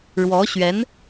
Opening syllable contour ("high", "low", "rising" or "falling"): rising